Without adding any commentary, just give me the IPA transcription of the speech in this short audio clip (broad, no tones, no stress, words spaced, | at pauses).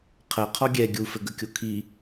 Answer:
qʰɜqʰɔ ɡʲɛ ɡʲufɘɡəkʲo kʰi